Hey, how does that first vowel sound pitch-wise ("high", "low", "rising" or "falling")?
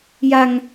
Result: high